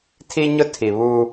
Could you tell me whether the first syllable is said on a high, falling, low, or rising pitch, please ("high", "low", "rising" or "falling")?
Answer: high